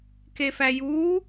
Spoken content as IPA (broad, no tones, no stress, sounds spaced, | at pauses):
k e f æ j uː